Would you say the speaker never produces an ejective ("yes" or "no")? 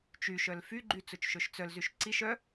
yes